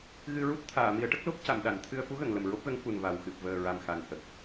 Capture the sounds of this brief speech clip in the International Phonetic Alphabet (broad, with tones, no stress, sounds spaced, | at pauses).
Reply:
ɣ ɨ˧ ɹ u˦˥ t̚ t̪ʰ aː˨˩˨ m i˨˩˦ ə̯ ʈ ə˦˥ k̚ l o˦˥ p̚ c a˨˩˨ m ɗ a˨˩˨ n t̪ʰ ɨ˧ ə̯ f u˧˥ ɣ ə˨˩˨ ŋ l ə˨˩ m ɹ o˦˥ p̚ ɣ ə˧˥ ŋ f u˨˩ n v a˨˩ w x ɨ˨˩ p̚ v əː˨˩ ɹ a˨˩ m x a˨˩ n h ə˨˩ k̚